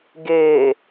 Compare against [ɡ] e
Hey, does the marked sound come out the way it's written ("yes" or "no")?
yes